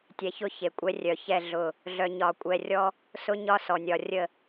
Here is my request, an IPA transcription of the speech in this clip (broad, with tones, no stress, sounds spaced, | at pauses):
tʲ ɛ˨ ç ʊ˦ ç e˨ kʷʼ ɛ˦ rʲ œ˨ ç ɛ˦˨ ɮ ʊ˦˨ | ɮ œ˨ ɲ ɒ˨ kʷʼ ɛ˨ rʲ ɔ˦ | s ʊ˦ ɲ ɒ˦ s ɔ˨ nʲ ɒ˨ rʲ ə˦˨